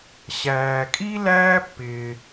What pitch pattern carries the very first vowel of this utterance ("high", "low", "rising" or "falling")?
low